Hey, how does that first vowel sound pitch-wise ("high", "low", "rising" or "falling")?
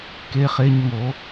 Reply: high